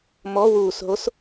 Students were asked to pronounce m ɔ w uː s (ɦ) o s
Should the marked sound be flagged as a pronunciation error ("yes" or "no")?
no